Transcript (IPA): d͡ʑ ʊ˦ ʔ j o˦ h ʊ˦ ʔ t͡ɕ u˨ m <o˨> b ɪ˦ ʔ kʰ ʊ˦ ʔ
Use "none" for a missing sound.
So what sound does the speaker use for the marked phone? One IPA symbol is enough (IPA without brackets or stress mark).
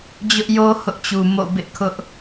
o̰˦˨